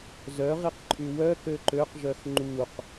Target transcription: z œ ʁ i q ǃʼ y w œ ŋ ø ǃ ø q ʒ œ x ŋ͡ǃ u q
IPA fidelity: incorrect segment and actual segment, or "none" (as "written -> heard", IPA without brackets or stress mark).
ŋ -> k